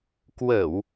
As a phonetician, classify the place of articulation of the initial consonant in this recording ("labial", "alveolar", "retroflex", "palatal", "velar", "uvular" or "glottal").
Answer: velar